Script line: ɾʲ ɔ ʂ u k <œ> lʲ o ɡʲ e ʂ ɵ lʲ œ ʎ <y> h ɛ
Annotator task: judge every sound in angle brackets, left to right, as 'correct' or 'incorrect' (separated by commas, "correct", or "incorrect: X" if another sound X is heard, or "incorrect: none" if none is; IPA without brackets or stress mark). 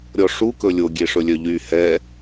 incorrect: ɵ, correct